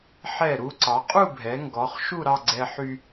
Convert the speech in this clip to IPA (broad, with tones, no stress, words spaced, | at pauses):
ħɛ˧˩ɾu˧ ǀɑ˩˧qʼu˥˧bʱɛ˩˧ŋɡɔ˩˧χ ʃu˥˧ɾɑ˥˧ɡ͡ǀɛ˧ħy˧